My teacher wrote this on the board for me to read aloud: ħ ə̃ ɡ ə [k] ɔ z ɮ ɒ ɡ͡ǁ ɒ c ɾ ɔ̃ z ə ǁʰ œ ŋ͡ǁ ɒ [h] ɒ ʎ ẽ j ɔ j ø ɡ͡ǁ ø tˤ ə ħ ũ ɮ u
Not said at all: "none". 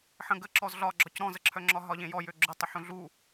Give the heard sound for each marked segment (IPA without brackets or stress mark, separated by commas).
ǁ, ɦ